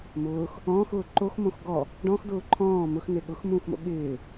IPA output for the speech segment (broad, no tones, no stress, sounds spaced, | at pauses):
m ʊː x | ɔ̃ː x ʊː ǃ o x m õ x ɡ ɔ | ɖ ɔ̃ x d ʊː ǃʰ ɔ̃ː m ʊ x n e ɠ ʊ x m ũː x m o̰ ɠ ɪː